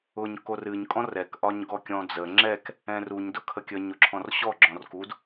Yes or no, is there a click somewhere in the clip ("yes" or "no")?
yes